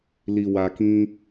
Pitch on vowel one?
low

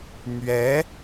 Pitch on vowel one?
rising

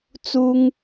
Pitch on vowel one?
high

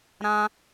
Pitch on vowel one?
high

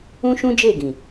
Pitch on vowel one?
high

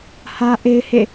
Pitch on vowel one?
high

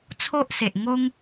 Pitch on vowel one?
high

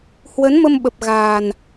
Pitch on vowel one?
rising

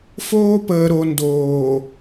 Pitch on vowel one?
high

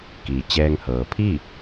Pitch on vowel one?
low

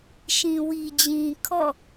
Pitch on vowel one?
low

